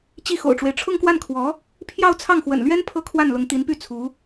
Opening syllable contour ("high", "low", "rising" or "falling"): falling